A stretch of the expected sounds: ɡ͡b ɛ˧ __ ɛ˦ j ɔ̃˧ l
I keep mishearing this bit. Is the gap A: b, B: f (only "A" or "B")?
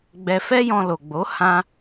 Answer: B